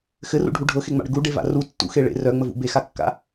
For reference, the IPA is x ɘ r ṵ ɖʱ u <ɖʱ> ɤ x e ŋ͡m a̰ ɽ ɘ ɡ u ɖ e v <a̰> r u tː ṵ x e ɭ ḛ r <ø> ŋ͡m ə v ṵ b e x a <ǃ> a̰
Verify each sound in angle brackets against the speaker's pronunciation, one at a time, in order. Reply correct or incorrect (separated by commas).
correct, correct, incorrect, incorrect